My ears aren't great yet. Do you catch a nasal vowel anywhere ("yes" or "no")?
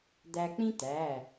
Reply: yes